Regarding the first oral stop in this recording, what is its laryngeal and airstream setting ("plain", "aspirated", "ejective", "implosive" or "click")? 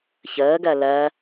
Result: plain